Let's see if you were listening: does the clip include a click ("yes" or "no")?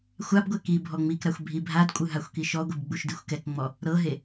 no